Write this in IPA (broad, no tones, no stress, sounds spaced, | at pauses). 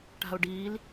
ʈ a̤ ʊ̯ ɖ iː l